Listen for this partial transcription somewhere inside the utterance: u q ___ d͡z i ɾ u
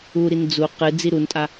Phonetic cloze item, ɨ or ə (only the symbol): ɨ